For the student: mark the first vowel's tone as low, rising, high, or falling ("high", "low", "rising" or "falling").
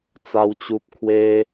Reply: high